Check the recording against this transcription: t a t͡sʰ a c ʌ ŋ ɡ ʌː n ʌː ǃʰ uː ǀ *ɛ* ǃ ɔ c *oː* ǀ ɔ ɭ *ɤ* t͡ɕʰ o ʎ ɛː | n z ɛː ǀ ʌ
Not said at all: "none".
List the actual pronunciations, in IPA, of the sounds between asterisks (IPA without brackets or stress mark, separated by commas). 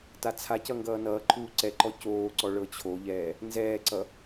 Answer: ɛ, oː, ɤ